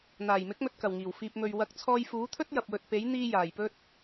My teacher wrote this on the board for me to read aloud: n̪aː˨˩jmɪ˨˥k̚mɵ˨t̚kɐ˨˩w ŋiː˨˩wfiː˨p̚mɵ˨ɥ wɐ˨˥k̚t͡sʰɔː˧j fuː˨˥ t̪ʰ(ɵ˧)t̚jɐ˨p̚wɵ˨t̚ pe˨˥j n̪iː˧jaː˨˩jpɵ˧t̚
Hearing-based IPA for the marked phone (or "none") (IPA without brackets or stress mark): ɵ˥